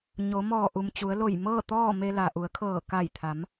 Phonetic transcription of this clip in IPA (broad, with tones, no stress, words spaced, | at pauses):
ɲo˩˧mɔː˧˩ʔu˩mt͡ɕu˩˧ə̯ lo˧˩jmɤː˥˨ t̪ɔː˥˨me˧ la˩ʔu˩˧ə̯kʰɤː˧˩ ka˧˩jt̪ʰa˩˧m